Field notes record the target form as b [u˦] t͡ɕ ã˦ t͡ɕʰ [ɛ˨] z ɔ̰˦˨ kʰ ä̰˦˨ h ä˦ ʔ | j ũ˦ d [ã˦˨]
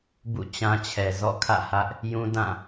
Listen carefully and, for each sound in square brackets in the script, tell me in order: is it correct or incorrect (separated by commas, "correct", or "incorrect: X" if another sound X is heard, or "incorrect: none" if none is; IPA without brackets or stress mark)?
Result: incorrect: ṵ˦˨, correct, correct